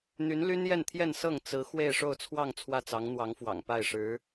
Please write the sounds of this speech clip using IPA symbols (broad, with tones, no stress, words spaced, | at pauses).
n̪y˧˥nly˥njɛ˥˧nt̪ʰjɛ˥˧n sɤ˥˩ŋ t͡sɹ̩˧˥ xwe˥˧ɪ̯ʂo˥˧ʊ̯t͡sʰwɑ˥˧ŋ t͡sʰwä˥˩t͡sɑ˧˥ŋn̪wɑ˧˥ŋfwɑ̰˨˩ŋ pa˥˩ɪ̯ʂɻ̩˧˥